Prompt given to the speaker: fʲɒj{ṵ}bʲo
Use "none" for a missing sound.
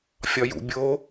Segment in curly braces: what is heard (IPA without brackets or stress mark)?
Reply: ṵ